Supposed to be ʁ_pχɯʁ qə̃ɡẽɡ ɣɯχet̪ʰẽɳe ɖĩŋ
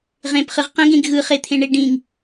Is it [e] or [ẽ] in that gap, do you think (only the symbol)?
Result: ẽ